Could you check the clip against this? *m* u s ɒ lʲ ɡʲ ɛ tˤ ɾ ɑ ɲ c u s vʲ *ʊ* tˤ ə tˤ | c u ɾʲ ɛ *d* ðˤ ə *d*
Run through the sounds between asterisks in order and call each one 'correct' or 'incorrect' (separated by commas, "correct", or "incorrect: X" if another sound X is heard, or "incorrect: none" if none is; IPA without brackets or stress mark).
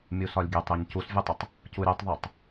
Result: incorrect: mʲ, incorrect: u, incorrect: tˤ, incorrect: tˤ